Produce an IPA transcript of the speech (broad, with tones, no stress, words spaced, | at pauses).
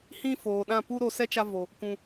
hĩ˦foː˨ɗã˦˨ pu˦ɾoː˧sɛ˦ t͡ʃa˦vo˨ | kʷũ˨